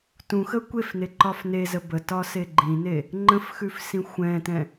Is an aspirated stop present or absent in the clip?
absent